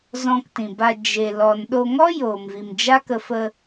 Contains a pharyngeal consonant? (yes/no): no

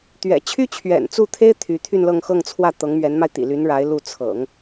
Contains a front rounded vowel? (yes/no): yes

